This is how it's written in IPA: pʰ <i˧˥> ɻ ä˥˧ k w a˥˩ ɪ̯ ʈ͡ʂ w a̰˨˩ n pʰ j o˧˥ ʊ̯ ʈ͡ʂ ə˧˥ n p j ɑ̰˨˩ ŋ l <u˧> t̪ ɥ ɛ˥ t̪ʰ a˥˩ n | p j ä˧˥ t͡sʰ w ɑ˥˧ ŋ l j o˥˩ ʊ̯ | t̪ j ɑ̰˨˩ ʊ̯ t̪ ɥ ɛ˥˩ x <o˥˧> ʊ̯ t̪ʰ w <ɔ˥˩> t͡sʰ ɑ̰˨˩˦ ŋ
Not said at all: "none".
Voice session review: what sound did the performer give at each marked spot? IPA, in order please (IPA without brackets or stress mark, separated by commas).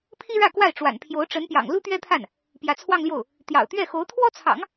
i˥, u˥, o˧˥, ɔ˥